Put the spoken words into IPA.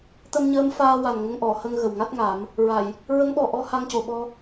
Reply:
t̪ ə˧ m ɲ əː˧˥ m f aː˧ w a˨˩ n ŋ ə˧ ŋ ʔ ɔ˨˩˨ h ə˧ ŋ ɣ ə˨˩ w ŋ a˦˥ t̚ ŋ a˨˩˦ m | ɹ a˨˩˨ j | ɹ ə˧˥ ŋ ɓ ɔ˨˩ ʔ ɔ˧ h a˧ ŋ c o˨˩ ɓ ɔ˧

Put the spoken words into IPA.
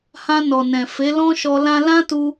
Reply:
h ã˧ n ɔ˨ n ɛ̃˨ f e˨˦ l ɔ̃˦ ʃ ɔ˧ l ã˦ l ã˦ t u˧

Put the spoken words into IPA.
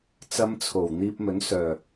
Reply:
t͡s ɐ˨˧ m t͡sʰ o˨˩ w n̪ iː˧ p̚ m ɵ˨˥ n s œː˨˩

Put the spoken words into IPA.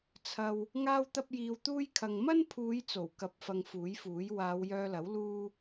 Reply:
t͡sʰ ɐ˧ w | ŋ aː˥ w t̪ ɐ˥ p̚ j iː˧ w t̪ uː˥ j kʰ ɐ˧ ŋ m ɐ˥ n pʰ uː˨˧ j t͡s o˨˩ w k ɐ˨ p̚ f ɐ˧ ŋ f uː˨˥ j f uː˨˥ j w aː˨˧ w j œː˧ l ɐ˨˥ w l uː˥

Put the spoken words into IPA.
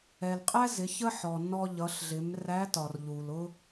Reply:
ɛ˩ l qʼ æ˥ z ɪ˩˧ ç ə˥ ħ ɔ˩ n ɔ˧ ʎ ʌ˩˧ ɬ ɮ ɪ˩˧ m r æ˧˥ t ɒ˩ r ʎ u˩ l ʊ˥

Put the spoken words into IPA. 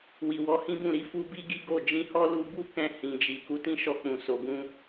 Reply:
w i˨ w ɔ˨˦ h ĩ˦ b ũ˦˨ ɾ i˨˦ f u˧ b i˦ ɡ i˦ ɡ o˦˨ d͡ʒ ĩ˧ h ɔ˦ l u˧ b u˦ k ɛ̃˧ h ĩ˨ d͡ʒ i˨ k u˨˦ t ĩ˦ ʃ ɔ˧ k͡p ũ˨ s o˨ ɡ ũ˧

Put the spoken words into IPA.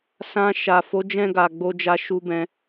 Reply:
s ã˧ ʃ a˨ f o˨˦ d͡ʒ ɛ̃˧ ɡ a˨ ɡ͡b o˧ d͡ʒ a˧ ʃ u˧ b ɛ̃˧

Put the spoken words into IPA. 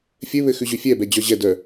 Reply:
fʲ ɘ β ɘ x ʉ ʑ ʉ fʲ ɛ b ɛ d͡ʑ œ ʑ ɛ d œ

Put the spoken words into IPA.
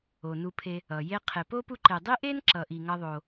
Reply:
o˩ n u˨ pʰ e˨ | ʌ˩ j e˦ qʰ e˨ p o˥ p u˦ ǃ e˨ dˤ i˥ ʔ e˥ n ǁ ʌ˨ ʔ i˨ ŋ ʌ˦ ðˤ o˨

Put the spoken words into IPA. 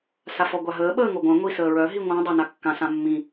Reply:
s a f ɔ ɡʷ a ɦ əː ɓ əː ŋ o ɡʷ œ̃ ŋʷ i s əː ɹ œ ɦ i ŋʷ ã dˤ a n a kː ã s ã mː ĩ

